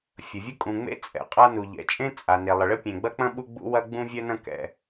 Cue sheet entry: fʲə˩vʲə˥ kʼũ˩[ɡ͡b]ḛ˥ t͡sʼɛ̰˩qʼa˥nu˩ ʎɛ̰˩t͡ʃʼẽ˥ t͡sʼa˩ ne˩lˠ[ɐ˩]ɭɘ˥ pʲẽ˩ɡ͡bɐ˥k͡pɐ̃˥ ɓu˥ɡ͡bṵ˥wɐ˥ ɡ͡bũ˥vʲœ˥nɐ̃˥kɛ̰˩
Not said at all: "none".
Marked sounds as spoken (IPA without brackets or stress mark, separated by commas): ŋ͡m, ə˩